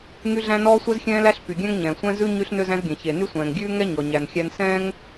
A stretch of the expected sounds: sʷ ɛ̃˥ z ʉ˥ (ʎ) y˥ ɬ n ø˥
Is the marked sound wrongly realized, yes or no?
yes